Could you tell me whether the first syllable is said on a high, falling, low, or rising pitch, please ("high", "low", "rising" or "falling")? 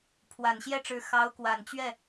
low